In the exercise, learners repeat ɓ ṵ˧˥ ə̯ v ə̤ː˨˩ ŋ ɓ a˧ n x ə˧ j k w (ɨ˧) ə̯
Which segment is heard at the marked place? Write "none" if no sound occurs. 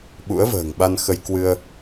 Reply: ɨ˧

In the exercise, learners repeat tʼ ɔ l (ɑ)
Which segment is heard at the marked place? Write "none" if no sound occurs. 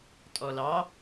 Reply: ɑ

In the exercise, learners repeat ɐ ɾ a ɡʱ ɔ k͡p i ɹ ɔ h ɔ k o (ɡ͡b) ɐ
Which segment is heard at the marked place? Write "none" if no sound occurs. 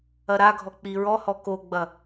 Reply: ɡ͡b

